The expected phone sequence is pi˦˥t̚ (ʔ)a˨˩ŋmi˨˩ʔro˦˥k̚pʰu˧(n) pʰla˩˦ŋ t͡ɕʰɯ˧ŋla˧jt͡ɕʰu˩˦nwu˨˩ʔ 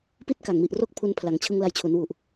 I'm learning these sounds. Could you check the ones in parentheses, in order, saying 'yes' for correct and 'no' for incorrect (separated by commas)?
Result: no, yes